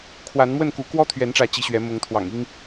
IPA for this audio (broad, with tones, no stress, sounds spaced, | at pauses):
kʰ w a˨˦ n m w ə˥˨ n k u˨˦ k w ɔ˦ t̪ʰ ɥ ɛ˨˦ n ʈ͡ʂ ä˨˦ t͡ɕ i˨˦ ɕ ɥ ɛ˨˦ m ʊ˨˦ ŋ t̪ʰ w ɑ̰˨˩ ŋ i˦ ŋ